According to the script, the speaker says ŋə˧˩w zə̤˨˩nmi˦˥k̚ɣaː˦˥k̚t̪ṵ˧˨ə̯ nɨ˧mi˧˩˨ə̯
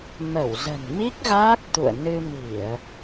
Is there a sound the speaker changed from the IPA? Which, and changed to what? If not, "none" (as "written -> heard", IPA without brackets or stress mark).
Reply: ŋ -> m